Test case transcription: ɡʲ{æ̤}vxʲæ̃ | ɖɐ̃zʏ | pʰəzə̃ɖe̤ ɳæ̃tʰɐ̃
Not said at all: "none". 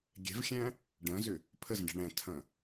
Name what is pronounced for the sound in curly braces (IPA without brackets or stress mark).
ɛ̤